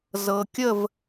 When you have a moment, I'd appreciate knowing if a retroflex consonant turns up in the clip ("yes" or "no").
no